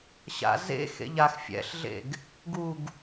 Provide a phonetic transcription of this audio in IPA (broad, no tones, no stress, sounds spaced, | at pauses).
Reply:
ɕ a̰ z ḛ x ḛ ʎ a x fʲ ɛ̰ ɬ ɮ ḛ ɡ | ɡ u ɡ